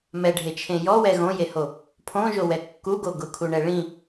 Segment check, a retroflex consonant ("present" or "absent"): present